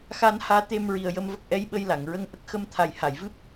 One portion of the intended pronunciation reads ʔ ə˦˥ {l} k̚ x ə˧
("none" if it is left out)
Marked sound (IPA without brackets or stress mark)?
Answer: none